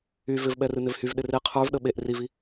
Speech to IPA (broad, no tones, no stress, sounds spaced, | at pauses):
y v ɪ v ɓ ɛ r ɨ n ɪ v h y v ɗ ɪ r e qʰ ə˞ v ɗ ə ɓ e ʔ r i v i